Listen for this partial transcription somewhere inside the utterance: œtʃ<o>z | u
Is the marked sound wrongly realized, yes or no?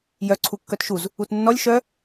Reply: yes